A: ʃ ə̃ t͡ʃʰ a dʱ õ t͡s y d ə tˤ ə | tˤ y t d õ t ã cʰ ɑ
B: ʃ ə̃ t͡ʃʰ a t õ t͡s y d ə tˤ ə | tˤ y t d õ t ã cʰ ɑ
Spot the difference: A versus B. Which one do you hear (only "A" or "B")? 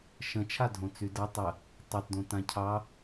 A